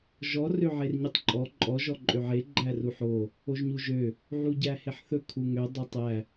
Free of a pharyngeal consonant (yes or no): no